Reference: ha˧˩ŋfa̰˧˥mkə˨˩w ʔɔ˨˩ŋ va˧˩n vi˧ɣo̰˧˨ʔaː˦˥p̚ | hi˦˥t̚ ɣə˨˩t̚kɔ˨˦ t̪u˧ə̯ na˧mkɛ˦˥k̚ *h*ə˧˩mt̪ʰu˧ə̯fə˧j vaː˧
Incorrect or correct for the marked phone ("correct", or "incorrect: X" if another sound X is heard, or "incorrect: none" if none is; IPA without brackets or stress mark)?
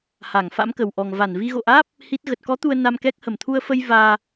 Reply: correct